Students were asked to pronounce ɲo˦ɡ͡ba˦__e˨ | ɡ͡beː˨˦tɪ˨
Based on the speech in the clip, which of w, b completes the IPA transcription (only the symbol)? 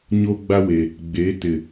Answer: w